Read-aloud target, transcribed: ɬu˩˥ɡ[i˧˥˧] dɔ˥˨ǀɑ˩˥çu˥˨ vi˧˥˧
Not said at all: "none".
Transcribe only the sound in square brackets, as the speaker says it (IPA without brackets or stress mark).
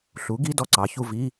i˧˥˧